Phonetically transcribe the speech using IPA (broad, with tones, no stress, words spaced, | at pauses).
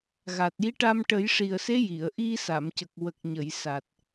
ɣa˨˩t̚ji˧˥ʈa˧m ʈə˨˩˦jʂi˨˩ə̯se˧˥ ji˨˩˨ə̯ʔi˧ sa˨˩˨mcə˨˩k̚ wə˨˩k̚ɲə˨˩˨j sa˨˩t̚